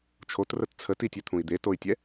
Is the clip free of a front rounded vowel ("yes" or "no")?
no